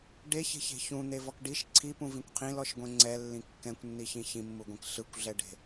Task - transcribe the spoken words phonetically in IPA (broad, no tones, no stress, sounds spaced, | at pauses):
ɖ e ç e̤ ç e̤ ç ũ n̪ e v ɔ k ɖ i ʃ ǀʰ i p ũ v ĩ kʷ qʰ ĩ l ɔ ʃ ɡʷ ẽ ŋ͡ǀ ɛ lː ĩ kː ɛ̃ kʷ nː i ç ĩ ç ĩ mː u ɡʷ ẽ k ɬ ɯ kʷ ɮ ɛ ɖ e̤